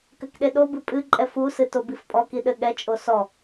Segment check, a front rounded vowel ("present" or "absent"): absent